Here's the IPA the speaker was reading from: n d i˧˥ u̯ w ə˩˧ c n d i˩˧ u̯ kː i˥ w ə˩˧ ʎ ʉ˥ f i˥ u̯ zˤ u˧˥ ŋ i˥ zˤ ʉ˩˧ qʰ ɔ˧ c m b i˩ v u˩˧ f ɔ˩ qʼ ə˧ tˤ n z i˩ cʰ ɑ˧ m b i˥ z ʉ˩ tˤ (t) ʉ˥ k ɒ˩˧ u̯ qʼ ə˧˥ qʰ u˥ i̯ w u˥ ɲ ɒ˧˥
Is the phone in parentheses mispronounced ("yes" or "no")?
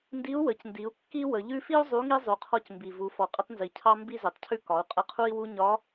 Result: yes